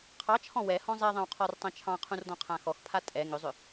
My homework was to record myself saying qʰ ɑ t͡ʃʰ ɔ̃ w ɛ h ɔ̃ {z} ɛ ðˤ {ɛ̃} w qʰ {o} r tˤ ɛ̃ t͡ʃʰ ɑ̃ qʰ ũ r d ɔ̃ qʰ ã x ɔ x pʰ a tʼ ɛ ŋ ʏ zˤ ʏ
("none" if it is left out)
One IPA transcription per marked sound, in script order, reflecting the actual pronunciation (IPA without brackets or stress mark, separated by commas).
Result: zˤ, ɛ̃, ɔ